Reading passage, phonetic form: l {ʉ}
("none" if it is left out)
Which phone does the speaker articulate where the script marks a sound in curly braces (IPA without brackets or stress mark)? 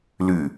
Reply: ʉ